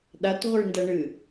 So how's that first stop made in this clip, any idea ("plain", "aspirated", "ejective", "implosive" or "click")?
implosive